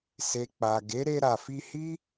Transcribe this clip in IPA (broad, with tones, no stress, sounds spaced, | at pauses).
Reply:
s e˨ k͡p a˨ ɡ e˨˦ ɾ e˧ ɾ a˨ f i˧ h i˦